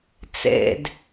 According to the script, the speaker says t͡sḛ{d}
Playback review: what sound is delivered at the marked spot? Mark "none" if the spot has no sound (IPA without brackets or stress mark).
d